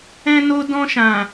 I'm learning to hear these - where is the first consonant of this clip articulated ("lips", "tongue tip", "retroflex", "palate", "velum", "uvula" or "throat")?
tongue tip